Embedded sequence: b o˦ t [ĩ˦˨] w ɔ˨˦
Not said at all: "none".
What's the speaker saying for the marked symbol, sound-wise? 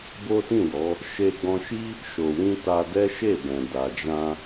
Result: ĩ˦˨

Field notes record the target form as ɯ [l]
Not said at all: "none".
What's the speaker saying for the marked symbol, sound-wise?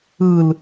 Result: l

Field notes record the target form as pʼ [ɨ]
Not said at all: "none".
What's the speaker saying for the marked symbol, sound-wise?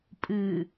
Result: ɨ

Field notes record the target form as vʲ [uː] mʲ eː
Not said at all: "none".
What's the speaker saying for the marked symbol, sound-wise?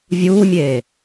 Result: uː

